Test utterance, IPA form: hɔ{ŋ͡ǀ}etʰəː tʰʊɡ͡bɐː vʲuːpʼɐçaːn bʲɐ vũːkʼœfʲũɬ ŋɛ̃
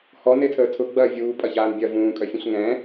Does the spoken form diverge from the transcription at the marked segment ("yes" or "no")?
yes